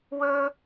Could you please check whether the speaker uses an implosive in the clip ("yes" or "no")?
no